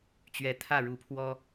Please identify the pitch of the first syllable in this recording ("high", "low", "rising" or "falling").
rising